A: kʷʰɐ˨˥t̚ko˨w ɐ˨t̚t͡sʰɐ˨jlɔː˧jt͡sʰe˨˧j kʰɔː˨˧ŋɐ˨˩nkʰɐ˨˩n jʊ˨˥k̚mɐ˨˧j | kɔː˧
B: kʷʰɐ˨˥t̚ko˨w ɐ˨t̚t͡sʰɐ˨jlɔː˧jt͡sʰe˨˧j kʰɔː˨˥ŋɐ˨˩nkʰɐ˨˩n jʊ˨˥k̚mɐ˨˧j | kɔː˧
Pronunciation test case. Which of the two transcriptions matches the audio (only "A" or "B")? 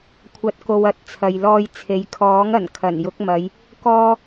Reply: B